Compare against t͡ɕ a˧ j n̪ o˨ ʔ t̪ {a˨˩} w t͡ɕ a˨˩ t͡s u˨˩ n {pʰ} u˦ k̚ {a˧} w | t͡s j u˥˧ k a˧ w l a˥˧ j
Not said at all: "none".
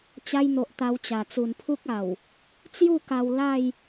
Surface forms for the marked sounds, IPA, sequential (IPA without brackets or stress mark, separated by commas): a˧, pʰ, a˨˩